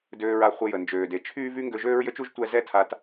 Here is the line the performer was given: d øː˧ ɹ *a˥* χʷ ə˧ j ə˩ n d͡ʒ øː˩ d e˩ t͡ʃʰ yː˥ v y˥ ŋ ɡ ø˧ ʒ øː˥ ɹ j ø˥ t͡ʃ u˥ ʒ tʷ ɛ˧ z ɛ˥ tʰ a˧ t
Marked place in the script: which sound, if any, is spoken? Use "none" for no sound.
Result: a˧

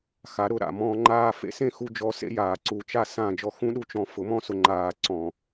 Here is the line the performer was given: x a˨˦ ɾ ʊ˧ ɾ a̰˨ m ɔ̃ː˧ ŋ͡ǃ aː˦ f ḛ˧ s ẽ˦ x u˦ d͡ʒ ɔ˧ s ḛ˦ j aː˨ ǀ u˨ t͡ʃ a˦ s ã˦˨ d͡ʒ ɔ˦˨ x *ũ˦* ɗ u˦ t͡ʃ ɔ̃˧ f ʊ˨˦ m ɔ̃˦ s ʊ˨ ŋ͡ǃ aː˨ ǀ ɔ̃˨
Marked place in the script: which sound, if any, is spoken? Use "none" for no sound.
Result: ũ˦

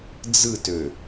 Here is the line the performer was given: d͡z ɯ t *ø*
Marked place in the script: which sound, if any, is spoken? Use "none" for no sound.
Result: ø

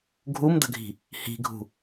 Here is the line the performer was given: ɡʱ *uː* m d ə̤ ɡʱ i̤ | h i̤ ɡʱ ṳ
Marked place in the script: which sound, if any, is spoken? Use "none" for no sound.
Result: u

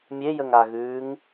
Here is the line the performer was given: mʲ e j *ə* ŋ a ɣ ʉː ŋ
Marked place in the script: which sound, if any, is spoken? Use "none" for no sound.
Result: ə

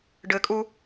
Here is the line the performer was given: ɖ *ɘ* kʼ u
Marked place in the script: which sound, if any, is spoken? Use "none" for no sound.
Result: ɘ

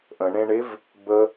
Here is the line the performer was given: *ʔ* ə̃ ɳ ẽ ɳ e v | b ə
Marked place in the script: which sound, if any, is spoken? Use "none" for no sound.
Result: ʔ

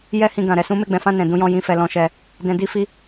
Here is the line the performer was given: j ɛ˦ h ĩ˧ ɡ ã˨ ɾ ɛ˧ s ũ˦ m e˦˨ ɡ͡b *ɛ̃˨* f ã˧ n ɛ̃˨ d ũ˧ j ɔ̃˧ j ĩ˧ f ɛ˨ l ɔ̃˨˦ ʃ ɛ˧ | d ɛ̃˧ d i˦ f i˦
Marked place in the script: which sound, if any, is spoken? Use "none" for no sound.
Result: ɛ̃˨˦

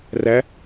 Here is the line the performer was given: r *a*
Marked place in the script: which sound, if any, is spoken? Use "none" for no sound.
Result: æ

